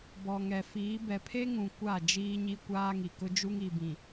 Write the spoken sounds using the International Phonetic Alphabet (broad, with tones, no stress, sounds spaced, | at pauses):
b ɔ˨ ŋ ɛ˨ f iː˨˦ b ɛ˨ pʰ e˦ ŋ ũ˨ kʷ a˦˨ d͡ʒ iː˦ ɲ i˦ kʷ aː˦ ŋ i˨ k ʊ˦ d͡ʒ u˦ ŋ i˨ b ĩ˨